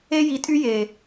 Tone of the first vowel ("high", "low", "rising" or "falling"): high